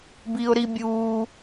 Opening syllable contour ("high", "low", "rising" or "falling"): high